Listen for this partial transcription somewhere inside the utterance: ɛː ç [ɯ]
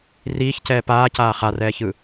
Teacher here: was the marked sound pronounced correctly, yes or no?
yes